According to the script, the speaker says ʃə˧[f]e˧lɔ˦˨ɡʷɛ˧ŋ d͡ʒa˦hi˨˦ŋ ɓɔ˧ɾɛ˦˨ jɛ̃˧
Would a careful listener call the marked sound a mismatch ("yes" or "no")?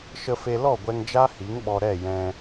no